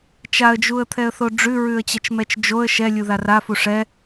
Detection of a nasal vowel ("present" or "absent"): absent